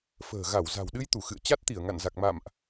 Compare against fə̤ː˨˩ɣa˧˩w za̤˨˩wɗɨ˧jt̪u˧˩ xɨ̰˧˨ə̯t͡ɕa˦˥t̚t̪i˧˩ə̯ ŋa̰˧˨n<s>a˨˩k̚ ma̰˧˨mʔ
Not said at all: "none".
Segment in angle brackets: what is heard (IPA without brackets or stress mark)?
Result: z